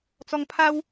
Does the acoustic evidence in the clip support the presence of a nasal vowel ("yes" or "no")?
no